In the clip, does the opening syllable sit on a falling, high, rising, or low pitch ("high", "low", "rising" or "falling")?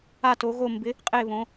falling